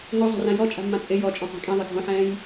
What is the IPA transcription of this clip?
ŋozˤa̤rã jɔt͡ʃʼa̤mːã t͡sʼɪ jɔt͡ʃʼɔ̃qʷa̤ kʼĩðˤɪ ɡʱõħɛ̃ːj

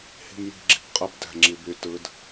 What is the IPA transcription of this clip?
hi̤mji̤ɡ͡ǁi̤bqʼɯb dæ̤ŋ͡ǁiby tɯd

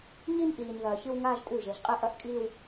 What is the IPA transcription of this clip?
ɲi˦nʔiː˨n ðɐː˨çɨ˦w ŋaː˦ʒtʼʉ˦˨ʒe˨˦ʒqʼi˦ ʔɐ˦ʔkʼiː˦w

